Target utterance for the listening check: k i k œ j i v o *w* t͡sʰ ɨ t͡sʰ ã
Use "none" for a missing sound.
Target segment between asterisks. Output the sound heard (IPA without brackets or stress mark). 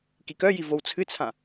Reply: w